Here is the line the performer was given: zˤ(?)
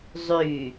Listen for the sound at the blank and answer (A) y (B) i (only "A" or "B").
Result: A